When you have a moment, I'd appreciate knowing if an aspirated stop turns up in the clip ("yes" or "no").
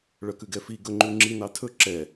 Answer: yes